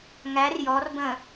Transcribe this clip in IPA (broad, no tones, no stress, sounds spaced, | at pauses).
ŋ æ r j ɔ r b ə̃